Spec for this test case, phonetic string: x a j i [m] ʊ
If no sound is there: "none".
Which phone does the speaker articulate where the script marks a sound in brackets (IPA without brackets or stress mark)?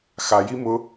m